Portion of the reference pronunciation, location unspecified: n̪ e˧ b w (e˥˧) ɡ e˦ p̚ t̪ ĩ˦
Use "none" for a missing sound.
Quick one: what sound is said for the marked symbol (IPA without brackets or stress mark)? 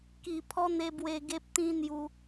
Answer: e˧